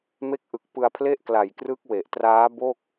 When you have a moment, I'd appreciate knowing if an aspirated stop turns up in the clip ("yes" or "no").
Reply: yes